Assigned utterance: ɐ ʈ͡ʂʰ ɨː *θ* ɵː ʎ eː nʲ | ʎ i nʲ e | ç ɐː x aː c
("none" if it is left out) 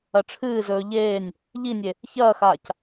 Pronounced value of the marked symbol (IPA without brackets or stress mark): z